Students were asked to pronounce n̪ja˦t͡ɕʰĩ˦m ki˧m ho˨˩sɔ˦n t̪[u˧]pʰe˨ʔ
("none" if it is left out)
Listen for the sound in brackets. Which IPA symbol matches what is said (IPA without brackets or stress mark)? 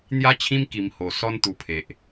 u˧